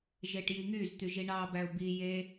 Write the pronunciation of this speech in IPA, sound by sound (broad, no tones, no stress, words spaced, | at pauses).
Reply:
ʒeʈjiŋyzt̪y ʒiɳɑbæʊ̯ bi je